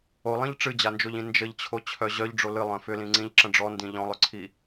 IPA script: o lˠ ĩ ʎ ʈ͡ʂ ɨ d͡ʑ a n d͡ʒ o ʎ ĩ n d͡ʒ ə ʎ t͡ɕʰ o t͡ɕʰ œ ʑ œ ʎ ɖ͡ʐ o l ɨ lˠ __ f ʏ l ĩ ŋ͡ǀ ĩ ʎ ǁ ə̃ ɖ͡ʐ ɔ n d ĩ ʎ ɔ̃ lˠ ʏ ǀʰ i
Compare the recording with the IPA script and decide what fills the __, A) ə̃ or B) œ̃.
B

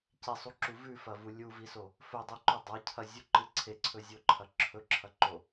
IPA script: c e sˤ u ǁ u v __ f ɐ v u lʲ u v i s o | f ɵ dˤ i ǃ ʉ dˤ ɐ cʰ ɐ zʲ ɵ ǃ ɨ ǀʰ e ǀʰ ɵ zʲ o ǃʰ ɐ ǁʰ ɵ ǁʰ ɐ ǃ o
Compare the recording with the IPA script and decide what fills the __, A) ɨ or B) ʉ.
B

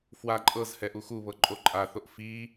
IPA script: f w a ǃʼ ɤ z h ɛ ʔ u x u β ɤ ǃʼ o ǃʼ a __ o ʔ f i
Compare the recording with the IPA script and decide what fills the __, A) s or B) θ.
B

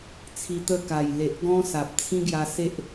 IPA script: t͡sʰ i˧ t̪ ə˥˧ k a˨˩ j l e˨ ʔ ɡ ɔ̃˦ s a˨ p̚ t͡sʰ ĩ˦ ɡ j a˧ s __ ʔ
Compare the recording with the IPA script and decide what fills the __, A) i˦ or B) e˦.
B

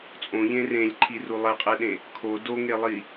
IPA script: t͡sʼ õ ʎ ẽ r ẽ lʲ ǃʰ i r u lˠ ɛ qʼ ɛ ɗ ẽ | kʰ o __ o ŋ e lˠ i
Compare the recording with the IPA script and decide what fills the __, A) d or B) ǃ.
A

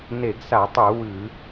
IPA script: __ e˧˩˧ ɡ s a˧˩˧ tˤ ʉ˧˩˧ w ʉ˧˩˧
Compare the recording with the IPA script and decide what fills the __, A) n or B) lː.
A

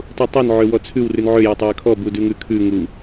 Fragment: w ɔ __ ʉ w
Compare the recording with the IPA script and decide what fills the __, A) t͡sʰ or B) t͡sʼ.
A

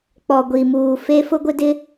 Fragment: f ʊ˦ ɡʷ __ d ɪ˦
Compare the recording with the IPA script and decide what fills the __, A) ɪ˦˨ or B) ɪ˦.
B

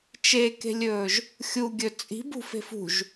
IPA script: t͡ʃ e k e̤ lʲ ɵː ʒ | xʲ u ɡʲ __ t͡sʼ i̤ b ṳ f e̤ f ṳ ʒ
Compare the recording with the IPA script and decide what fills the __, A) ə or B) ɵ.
B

